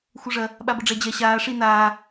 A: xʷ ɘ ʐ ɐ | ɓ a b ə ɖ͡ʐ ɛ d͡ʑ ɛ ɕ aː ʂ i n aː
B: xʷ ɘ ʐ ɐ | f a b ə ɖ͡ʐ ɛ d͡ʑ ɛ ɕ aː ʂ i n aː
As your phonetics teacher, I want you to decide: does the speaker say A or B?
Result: A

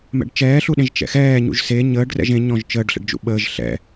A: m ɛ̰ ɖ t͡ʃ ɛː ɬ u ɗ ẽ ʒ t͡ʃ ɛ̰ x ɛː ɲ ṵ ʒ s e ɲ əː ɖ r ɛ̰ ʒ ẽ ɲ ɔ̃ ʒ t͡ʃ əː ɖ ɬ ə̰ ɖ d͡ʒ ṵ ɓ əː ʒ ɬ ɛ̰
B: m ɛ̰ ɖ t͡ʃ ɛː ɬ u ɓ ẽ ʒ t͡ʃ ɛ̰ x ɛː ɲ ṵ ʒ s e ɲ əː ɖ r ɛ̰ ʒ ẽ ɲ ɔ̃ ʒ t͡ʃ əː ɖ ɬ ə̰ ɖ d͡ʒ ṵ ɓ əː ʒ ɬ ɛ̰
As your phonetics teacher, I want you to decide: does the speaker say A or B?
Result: A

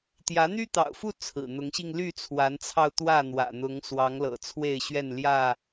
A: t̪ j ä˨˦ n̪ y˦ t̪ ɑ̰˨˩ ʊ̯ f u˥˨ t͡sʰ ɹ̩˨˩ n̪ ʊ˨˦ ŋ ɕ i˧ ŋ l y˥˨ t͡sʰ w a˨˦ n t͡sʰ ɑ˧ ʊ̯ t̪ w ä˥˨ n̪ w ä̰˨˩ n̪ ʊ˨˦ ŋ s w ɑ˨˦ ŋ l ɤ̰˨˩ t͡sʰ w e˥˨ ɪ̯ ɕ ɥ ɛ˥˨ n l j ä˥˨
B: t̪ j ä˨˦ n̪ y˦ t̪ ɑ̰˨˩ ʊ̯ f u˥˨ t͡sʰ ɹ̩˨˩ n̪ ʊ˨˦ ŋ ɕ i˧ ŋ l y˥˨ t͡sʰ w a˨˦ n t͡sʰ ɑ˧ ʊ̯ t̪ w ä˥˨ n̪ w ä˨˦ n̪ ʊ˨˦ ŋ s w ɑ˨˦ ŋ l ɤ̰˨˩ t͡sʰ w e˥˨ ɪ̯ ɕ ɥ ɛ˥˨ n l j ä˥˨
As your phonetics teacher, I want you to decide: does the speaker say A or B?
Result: A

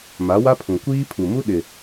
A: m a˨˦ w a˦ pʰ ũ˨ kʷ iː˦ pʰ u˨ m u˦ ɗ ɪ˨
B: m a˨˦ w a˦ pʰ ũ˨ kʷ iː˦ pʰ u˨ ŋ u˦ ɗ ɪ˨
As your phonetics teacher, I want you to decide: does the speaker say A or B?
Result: A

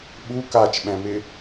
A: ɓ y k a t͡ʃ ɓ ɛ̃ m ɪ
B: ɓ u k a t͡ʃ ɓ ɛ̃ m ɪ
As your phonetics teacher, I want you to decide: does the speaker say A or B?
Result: B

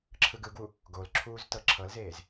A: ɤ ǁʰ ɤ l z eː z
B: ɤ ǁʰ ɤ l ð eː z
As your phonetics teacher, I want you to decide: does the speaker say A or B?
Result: A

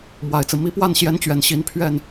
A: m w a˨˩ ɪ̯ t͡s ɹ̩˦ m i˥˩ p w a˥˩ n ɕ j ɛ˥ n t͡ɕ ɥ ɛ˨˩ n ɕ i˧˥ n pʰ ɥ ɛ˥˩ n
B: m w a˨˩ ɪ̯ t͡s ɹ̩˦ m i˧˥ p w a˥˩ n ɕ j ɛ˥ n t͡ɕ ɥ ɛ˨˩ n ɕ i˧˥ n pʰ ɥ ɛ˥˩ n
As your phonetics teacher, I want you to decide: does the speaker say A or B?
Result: B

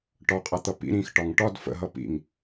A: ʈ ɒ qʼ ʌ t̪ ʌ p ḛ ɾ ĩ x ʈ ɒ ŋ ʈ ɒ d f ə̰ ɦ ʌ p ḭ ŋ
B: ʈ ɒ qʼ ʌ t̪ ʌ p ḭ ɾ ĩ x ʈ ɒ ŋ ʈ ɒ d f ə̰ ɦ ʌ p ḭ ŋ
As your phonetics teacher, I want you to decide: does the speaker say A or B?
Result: B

